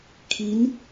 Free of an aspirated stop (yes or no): no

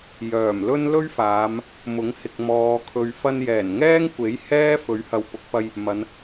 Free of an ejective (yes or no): yes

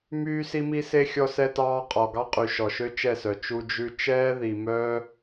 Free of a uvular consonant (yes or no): no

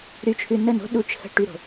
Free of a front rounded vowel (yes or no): no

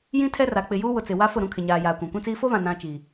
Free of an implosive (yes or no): yes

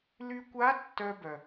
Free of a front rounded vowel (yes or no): no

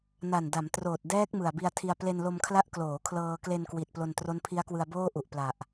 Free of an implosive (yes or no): yes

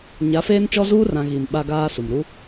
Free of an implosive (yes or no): no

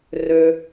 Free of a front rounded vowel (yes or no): no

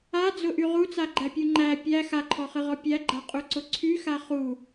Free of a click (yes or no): no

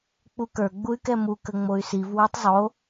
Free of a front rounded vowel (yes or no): no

